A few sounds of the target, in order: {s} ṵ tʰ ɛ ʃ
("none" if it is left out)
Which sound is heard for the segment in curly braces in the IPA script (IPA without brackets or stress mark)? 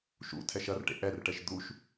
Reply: ʃ